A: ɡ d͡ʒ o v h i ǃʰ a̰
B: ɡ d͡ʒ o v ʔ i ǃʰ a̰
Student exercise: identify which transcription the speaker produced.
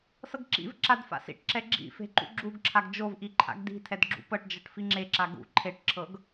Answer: B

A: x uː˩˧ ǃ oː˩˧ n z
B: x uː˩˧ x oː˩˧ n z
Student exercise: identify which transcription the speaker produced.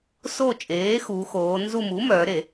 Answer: B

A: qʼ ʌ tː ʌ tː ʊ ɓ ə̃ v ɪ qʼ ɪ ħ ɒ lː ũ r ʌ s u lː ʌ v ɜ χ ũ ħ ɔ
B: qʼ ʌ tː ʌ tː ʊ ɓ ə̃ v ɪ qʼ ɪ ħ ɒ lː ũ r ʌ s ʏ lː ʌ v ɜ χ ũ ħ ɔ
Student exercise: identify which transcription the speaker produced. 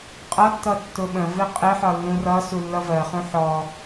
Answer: A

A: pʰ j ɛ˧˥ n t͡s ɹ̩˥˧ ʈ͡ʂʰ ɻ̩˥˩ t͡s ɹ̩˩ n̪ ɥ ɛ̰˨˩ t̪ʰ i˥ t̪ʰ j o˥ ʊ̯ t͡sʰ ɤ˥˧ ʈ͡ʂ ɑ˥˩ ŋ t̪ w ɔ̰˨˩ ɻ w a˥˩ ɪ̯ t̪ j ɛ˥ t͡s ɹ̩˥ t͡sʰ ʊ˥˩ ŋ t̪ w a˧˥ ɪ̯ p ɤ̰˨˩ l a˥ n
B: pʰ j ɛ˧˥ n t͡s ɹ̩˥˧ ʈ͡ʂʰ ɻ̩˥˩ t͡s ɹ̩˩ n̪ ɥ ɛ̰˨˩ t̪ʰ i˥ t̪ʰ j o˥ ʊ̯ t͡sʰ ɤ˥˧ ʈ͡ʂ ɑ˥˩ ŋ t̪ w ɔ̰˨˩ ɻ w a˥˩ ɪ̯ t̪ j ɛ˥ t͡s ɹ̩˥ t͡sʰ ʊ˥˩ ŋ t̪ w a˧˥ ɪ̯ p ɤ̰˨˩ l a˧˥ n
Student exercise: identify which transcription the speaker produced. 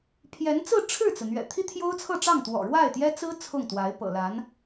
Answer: B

